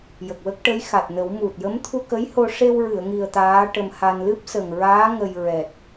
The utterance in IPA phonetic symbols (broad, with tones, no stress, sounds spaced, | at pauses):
j ə˨˩ k̚ w ə˦˥ k̚ ʈ ə˧˥ j x a˨˩ t̚ n ə˨˩˦ w m u˨˩ t̚ j ə˧˥ m t̪ʰ u˧ k ə˧˥ j h o˧ ʂ e˧ w ɹ ɨ˨˩˨ ə̯ ŋ i˧ ə̯ t̪ aː˧˥ ʈ ə˧ m h a˧ n l ɨ˦˥ p̚ s ə˨˩ ŋ ɹ aː˧˥ ŋ ə˧ j ɹ ɛ˨˩ t̚